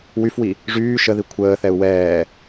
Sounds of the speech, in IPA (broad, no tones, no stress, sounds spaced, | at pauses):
w y f w i | ʐ yː ʃ ə ð i kʷʰ əː θ ɛ u̯ w ɛː